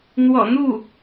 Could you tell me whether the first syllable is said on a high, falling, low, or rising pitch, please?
low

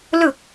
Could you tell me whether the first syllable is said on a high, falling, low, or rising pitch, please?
low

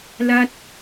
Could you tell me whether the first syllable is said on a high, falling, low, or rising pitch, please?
falling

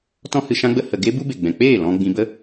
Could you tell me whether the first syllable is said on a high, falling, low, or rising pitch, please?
high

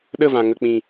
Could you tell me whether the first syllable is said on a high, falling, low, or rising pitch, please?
falling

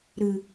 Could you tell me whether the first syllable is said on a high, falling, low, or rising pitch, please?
low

